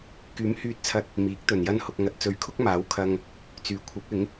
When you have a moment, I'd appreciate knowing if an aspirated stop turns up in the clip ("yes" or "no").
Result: yes